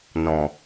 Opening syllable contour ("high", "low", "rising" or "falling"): low